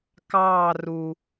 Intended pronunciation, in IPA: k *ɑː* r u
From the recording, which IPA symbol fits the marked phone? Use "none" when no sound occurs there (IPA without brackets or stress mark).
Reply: ɑː